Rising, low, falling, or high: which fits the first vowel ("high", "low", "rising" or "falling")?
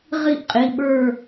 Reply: falling